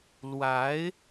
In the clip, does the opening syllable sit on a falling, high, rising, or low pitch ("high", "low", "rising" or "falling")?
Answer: rising